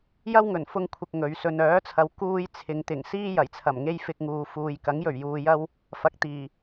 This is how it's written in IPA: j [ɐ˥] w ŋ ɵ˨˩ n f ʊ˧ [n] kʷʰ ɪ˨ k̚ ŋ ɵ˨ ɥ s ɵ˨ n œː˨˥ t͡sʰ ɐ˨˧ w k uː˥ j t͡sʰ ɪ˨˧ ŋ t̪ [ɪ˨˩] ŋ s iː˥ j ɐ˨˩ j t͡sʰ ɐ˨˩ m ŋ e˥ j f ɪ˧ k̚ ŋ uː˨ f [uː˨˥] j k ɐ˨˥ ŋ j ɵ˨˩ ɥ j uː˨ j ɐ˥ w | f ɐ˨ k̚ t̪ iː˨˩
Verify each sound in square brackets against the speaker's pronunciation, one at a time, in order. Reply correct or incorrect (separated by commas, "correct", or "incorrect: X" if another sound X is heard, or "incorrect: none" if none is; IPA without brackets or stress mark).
correct, incorrect: ŋ, correct, incorrect: uː˨